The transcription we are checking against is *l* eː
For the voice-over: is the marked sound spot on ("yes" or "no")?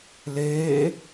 yes